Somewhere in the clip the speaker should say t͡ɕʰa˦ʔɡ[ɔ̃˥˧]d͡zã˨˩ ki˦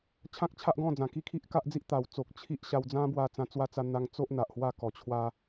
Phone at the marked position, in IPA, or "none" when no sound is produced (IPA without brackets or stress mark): ɔ̃˥˧